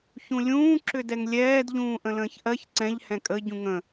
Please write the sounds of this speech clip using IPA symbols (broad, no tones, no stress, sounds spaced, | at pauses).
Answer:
ç ũ lʲ ũː ǁ ʏ d ɛ ŋ lʲ ɛː d ʎ ũː ʔ ə̃ l ə̃ː ç ʔ ɜ ç ǀ ɛ̃ ʎ h ɛ̃ kʼ ə ɟ ũ ŋ ə̃